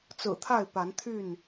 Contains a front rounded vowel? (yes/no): yes